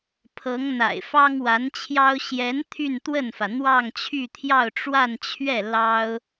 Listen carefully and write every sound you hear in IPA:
pʰɤ˧˥ŋ n̪a̰˨˩ɪ̯fɑ˥ŋwa˧˥nt͡ɕʰjɑ˥ʊ̯ ɕjɛ˧˥n t̪ʰy˥˧nt̪wə˥˩nfä˩ n̪wɑ˥˧ŋt͡ɕʰy˥˧t̪ʰjɑ˥˧ʊ̯ ʈ͡ʂwa˥˧nt͡ɕʰɥɛ˥˩ lɑ˥ʊ̯

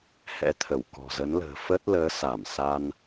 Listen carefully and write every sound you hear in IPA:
hɛ̰˧˥t̪ʰə˧˩w kɔ̤˨˩zə˨˦nlə̤ː˨˩ fə˦˥t̚ləː˨˦ sa˧˩m sa˧n

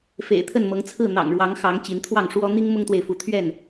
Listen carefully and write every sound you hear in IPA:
fḛ˨˩ɪ̯t̪ʰə˥˨nmɤ˨˦ŋ t͡sʰɹ̩˥˨ n̪ɑ̰˨˩ŋɻwɑ˨˦ŋxɑ˨˦ŋ t͡ɕi˨˦nt̪ʰwɑ˥˨ŋʂwɔ˦ n̪i˦ŋ mʊ˦ŋt̪we˨ɪ̯fu˨˦ t̪ʰɥɛ˥˨n

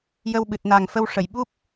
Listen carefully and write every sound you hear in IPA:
jə˧wɓɨ˨˩t̚ na˨˩ŋfə˧wʂə˨˩˨j ɓu˦˥p̚

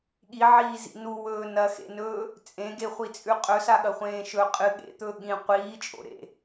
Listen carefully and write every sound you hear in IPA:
ɠiʕiːzḭ nuwɵː nɐxḛnɵː | t͡sʼẽɡeχʷit͡sʼʉ qʼɵsaɠɐχʷẽː ʃɵ qʼɨ ɠḛt̪ɵː ɠĩ qʷiːt͡ʃʼo̰ ɾḛ

